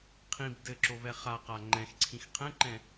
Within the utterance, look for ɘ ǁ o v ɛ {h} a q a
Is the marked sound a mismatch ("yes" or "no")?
yes